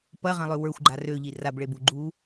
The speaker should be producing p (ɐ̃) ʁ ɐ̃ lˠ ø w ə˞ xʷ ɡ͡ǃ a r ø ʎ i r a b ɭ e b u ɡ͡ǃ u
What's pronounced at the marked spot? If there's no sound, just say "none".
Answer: ɐ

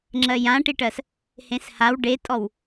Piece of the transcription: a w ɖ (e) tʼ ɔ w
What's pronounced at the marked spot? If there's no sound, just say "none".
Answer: e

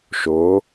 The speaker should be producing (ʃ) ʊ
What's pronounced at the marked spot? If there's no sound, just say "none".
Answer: ʃ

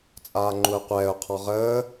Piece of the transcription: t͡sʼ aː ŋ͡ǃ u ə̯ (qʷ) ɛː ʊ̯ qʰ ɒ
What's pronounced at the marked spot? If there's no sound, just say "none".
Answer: qʷ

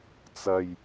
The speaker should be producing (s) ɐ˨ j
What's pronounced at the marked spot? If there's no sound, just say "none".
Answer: t͡s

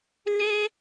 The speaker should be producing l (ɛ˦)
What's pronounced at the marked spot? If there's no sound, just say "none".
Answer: ɛ˦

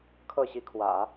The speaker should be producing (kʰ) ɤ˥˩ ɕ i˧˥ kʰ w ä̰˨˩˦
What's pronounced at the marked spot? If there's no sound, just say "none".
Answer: kʰ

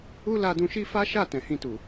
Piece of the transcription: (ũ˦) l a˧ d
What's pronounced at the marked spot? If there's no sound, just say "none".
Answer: u˦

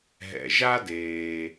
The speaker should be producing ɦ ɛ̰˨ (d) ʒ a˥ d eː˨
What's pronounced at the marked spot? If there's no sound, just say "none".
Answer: none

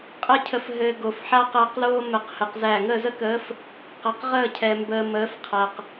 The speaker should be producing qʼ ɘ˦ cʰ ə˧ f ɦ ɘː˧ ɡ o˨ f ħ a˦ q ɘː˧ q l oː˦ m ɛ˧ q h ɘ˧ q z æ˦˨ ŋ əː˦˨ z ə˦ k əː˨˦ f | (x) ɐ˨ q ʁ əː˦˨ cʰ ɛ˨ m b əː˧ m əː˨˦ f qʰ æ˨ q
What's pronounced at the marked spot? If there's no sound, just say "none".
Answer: q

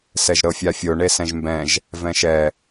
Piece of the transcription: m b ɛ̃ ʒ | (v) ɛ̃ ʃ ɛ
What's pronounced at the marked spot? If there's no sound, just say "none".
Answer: v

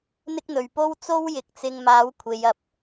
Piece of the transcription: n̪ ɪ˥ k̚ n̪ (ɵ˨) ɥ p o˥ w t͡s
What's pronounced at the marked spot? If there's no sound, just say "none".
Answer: ɵ˨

